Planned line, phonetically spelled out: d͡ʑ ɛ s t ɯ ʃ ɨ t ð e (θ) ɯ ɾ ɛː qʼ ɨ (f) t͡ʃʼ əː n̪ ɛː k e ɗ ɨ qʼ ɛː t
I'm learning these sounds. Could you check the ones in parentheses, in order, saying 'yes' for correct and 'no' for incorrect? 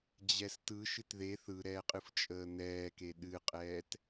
yes, yes

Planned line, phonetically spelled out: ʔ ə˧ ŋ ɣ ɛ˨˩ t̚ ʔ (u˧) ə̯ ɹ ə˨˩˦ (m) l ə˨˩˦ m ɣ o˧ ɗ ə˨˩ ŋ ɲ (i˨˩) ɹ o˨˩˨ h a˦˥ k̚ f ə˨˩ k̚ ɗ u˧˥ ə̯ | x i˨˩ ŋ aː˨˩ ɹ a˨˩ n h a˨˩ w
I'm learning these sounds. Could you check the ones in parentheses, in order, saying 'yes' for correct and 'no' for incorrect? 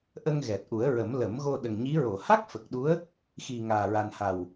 no, yes, no

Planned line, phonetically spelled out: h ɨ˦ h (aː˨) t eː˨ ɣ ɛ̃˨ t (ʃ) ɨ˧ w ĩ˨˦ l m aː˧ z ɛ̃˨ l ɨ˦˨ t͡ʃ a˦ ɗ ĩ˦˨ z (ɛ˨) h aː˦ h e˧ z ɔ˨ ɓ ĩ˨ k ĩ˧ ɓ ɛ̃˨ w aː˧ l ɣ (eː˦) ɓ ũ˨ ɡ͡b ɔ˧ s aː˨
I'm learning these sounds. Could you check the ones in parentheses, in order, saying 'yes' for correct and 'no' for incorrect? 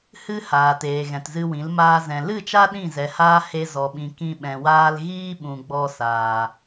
yes, no, yes, no

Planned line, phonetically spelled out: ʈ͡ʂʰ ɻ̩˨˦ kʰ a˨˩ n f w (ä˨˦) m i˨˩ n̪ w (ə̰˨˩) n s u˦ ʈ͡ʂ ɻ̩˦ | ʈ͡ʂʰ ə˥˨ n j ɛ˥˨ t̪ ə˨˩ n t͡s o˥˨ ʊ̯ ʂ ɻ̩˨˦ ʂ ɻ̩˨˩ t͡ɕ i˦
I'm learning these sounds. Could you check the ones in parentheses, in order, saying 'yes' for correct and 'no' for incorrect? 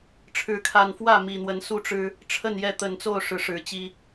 no, no

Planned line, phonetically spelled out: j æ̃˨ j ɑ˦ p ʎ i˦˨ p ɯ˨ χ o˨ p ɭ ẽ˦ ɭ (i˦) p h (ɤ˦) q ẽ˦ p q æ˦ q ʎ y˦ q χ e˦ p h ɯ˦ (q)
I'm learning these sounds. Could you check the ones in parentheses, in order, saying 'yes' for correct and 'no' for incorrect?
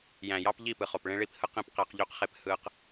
yes, no, yes

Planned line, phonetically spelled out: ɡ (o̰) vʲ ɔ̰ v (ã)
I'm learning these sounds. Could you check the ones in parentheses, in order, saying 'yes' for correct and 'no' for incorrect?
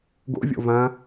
yes, yes

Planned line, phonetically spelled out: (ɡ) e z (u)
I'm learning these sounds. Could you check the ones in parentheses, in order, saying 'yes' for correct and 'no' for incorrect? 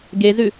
yes, no

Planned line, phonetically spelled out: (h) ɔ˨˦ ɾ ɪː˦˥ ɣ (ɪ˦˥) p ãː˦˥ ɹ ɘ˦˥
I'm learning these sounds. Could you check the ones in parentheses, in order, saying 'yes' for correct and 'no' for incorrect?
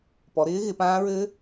no, no

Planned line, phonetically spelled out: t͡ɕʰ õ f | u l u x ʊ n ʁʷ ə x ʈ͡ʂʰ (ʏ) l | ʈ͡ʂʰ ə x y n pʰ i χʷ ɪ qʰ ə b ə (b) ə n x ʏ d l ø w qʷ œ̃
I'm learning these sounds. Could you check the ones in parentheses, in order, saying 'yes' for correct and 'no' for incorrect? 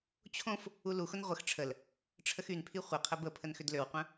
no, no

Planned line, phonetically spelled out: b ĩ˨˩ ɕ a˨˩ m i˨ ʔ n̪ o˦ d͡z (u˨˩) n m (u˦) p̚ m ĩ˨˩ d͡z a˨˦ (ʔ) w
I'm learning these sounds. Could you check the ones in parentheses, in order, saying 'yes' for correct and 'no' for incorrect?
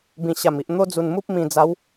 yes, yes, no

